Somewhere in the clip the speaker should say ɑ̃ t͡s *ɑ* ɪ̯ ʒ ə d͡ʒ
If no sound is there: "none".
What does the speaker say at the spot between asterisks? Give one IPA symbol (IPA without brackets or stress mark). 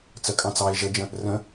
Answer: ɑ